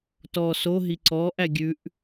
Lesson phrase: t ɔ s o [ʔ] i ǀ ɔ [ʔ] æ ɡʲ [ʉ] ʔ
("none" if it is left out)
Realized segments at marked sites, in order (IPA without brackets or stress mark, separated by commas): ɦ, ʔ, ʉ